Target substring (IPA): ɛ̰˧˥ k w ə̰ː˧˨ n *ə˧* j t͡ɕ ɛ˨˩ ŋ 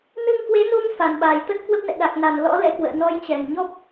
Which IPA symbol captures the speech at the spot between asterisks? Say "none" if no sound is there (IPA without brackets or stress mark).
ɔ˧